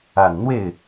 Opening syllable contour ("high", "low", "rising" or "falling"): low